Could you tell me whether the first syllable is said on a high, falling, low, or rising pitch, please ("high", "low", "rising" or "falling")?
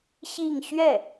falling